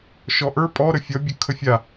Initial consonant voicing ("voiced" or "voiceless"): voiceless